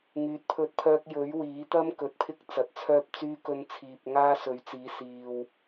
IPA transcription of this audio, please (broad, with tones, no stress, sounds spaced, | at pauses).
ŋ yː˨ t̚ pʰ ɵ˧ t̚ pʰ œː˧ k̚ j ɵ˨˥ ɥ w iː˨˥ t̪ ɐ˥ m k ɵ˨˥ t̚ pʰ ɪ˥ k̚ t͡s ɐ˨ t̚ t͡sʰ œː˧ p̚ t͡s yː˧ k ɵ˨˧ n t͡sʰ iː˨ p̚ ŋ aː˥ s ɵ˨˥ ɥ t͡s iː˨˥ s iː˨ w